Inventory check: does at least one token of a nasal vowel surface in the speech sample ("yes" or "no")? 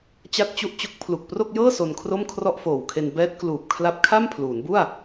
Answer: no